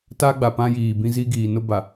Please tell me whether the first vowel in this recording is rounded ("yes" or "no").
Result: no